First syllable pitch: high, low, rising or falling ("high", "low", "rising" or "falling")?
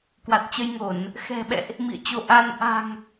low